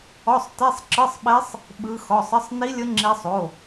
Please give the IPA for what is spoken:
ɔ˧˥˧sˤte˧˥˧sˤǁɯ˧˥˧sˤɓe˦˥sˤ | ɓɯ˦˥xɔ˧˥˧sˤ ə˧˥˧sˤni˦˥lʲə˦˥ ŋ͡ǁi˦˥sˤ o˧˥˧

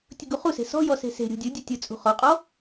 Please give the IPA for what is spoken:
tʲʊɡuχuse̤ sɔ̤jɔ se̤se̤ɾʲṳ dʲʊdʲʊ tʲʊ t͡sʼṳχɔqʼɔ

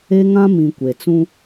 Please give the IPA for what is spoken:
e˦ŋã˦ mĩ˨ kʷe˨t͡sũ˦

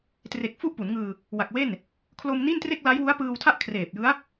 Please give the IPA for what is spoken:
tre˨˩k̚ fu˥˩ʔpu˩˦nŋɯː˧ | wa˨˩k̚we˥˩n | kʰlo˧mni˥˩ntre˥˩k̚ la˦˥jwu˦˥a̯pɯː˧wtʰa˥˩ʔ kʰreː˨˩p̚jɯ˦˥a̯

